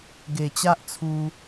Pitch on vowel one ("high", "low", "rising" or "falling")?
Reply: low